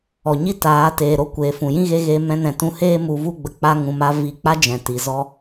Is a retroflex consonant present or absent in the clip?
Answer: absent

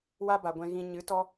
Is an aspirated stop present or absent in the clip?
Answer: absent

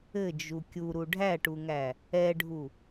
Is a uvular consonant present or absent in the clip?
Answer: absent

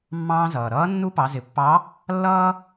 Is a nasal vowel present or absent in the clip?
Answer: present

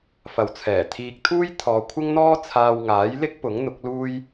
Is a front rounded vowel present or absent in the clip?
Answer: absent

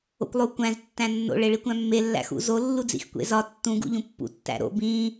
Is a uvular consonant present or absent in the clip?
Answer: absent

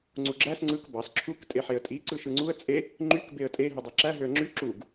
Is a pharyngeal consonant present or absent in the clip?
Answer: present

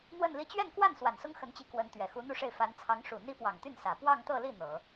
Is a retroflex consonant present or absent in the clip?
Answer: present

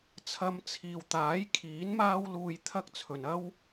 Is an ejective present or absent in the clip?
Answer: absent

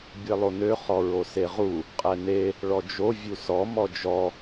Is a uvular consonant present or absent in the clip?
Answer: present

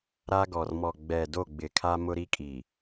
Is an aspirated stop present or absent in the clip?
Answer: present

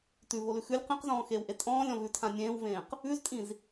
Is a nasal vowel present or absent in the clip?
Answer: present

